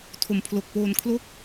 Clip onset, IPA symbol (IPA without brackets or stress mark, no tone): tʰ